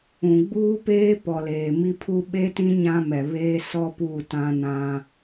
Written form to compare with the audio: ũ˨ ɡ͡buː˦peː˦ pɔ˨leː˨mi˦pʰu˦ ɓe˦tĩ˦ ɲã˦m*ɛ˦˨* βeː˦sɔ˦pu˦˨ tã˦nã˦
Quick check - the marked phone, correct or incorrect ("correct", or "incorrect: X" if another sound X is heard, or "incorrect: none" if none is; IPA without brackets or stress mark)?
incorrect: ɛ˨